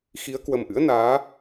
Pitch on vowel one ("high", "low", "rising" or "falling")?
rising